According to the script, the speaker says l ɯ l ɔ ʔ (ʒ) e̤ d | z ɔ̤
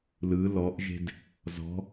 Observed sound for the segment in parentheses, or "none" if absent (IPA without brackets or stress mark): ʒ